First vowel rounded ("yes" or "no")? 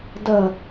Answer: no